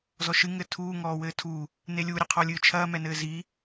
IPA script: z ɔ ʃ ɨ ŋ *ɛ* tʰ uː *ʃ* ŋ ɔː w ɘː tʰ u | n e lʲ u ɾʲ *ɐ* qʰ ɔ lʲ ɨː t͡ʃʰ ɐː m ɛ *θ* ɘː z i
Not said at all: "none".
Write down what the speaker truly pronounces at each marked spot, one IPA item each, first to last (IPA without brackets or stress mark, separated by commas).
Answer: ɘ, none, ɐ, n